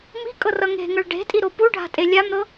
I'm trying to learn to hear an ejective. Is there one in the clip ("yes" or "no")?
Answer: yes